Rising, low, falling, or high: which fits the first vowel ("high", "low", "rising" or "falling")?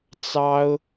high